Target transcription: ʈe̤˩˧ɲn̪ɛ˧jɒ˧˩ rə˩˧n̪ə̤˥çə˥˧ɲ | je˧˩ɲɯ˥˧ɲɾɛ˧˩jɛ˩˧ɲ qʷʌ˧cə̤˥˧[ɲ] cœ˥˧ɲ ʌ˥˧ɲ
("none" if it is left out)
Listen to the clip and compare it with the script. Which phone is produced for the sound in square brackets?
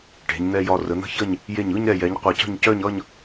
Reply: ɲ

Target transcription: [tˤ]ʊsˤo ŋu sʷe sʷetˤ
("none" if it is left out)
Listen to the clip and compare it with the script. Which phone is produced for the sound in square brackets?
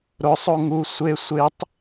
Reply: ɾ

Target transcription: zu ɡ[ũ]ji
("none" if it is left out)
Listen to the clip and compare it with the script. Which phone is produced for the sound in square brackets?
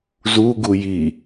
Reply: u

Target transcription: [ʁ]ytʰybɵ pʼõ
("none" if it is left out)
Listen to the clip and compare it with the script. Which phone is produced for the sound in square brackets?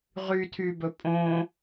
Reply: ʁ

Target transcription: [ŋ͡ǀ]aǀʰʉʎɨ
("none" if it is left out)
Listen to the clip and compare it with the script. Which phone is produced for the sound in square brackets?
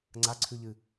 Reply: ŋ͡ǀ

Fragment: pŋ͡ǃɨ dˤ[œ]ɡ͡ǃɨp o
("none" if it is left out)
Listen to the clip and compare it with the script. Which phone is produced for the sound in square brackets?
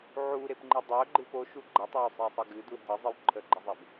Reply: œ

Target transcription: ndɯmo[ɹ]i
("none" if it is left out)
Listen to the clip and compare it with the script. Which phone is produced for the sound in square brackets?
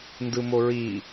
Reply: ɹ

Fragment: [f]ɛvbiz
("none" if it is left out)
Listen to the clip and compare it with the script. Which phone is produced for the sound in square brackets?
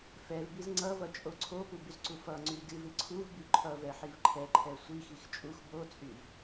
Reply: f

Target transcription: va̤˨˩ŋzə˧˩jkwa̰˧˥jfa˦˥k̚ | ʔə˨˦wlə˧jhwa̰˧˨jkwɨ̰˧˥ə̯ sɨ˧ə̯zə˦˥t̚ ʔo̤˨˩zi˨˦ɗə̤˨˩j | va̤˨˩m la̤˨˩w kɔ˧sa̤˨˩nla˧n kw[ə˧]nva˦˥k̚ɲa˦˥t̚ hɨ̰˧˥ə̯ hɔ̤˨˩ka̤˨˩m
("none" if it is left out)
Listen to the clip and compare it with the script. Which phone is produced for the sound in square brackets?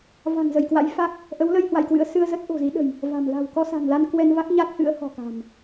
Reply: ɛ˧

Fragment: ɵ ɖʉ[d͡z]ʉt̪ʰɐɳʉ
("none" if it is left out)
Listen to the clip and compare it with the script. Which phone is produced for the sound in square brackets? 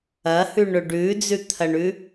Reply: d͡z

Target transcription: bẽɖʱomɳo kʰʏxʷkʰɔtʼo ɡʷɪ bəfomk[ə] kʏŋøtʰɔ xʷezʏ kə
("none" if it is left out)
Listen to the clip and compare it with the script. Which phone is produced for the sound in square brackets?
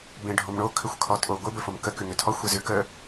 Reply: ə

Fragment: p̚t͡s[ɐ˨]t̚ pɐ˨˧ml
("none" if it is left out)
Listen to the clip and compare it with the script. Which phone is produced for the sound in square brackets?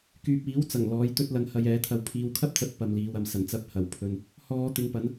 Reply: ɐ˨˥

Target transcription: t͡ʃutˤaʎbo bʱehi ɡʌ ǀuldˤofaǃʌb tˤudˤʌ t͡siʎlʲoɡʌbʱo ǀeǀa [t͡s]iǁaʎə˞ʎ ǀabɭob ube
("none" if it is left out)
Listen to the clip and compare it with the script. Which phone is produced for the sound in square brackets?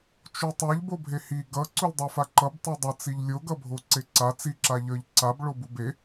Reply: t͡s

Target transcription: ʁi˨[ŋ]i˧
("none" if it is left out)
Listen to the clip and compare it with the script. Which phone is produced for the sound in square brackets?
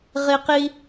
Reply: q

